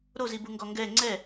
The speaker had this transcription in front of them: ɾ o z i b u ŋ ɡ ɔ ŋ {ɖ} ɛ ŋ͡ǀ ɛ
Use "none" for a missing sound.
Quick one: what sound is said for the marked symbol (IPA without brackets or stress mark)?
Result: ɡ